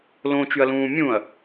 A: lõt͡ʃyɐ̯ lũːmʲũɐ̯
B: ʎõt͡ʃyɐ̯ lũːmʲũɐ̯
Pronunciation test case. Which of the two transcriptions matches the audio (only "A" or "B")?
A